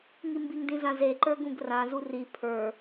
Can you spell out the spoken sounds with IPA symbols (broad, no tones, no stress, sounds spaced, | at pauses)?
ŋ i m b i ŋ d ĩ z ã z e ǃ ə˞ ɡ ũ ɡ r ã z u r i pʰ ə˞